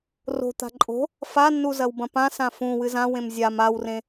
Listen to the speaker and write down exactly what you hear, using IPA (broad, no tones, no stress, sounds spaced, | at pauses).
r o̤ t̪ a̤ ǃʼ o̤ | f a nː u z ɐ w b ɐ̃ p ã s ã f ũ w ɨ z ã w ẽ m zʲ a m a w r ẽ